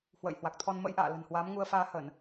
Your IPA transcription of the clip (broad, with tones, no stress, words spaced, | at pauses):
hwə̰ː˧˨j hwa˨˩k̚t̪ʰɔ˧n mə̰˧˥jʔa̰ː˧˨ lə̤˨˩nhwaː˨˦mŋu˧ə̯faː˧ həː˧˩˨n